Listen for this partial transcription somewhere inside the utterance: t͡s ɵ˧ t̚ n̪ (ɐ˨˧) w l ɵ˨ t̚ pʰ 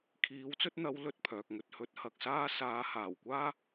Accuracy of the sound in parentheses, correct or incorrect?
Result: correct